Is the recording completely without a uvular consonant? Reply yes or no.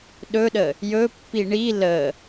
yes